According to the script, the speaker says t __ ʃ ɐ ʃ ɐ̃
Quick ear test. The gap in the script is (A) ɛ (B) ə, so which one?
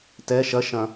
A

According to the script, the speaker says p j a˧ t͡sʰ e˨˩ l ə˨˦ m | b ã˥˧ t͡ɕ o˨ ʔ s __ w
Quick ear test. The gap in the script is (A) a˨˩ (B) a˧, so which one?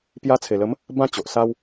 B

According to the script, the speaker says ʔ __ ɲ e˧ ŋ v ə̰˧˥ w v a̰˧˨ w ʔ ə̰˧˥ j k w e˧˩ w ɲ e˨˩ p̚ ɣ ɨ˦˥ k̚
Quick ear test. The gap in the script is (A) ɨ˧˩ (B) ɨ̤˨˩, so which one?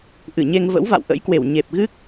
A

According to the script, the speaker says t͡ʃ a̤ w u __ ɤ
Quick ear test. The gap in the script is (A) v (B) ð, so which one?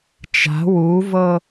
A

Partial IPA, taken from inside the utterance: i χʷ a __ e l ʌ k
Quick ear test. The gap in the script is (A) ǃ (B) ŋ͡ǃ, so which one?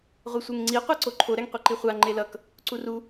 B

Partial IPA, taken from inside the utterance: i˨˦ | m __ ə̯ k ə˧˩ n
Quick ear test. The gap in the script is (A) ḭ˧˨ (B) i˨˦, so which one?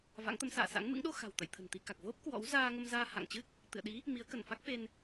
B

